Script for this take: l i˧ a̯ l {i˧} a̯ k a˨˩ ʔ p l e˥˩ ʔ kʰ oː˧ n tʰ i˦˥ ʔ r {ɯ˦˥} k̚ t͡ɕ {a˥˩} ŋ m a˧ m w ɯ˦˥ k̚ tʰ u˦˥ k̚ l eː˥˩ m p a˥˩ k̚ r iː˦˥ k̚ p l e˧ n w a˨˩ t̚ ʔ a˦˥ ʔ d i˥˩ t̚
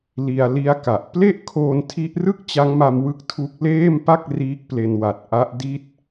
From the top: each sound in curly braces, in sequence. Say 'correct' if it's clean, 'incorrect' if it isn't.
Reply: incorrect, incorrect, incorrect

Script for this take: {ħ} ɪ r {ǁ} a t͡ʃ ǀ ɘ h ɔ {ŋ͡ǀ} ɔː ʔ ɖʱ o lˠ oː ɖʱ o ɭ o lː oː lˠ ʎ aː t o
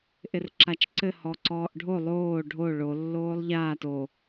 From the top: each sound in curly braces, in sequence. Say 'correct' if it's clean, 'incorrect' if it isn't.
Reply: incorrect, correct, incorrect

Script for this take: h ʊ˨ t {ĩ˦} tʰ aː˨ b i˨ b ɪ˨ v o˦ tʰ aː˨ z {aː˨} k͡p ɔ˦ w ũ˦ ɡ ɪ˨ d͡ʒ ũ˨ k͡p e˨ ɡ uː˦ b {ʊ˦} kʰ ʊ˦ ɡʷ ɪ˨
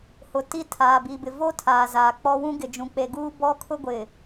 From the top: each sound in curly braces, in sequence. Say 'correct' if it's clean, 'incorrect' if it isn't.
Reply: incorrect, correct, incorrect

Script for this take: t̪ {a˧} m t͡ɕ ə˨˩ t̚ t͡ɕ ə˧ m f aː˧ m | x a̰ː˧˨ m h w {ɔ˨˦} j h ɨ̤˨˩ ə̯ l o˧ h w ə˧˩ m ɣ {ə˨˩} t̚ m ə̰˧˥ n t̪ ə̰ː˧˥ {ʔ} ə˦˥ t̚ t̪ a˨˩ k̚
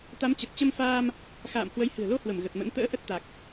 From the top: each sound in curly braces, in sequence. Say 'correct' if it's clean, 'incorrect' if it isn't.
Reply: incorrect, incorrect, correct, correct

